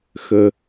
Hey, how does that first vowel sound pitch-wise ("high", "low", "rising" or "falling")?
low